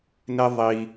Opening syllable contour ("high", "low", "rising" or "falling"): high